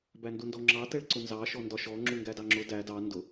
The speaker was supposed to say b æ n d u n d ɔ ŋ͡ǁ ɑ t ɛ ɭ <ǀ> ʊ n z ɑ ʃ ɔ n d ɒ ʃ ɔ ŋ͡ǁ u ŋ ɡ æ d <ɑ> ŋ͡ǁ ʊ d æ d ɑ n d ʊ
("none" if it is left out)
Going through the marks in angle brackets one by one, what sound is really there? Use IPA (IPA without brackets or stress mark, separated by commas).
ǀ, ɑ